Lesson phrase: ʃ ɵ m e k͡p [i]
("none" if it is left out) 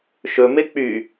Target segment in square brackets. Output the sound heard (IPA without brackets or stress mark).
y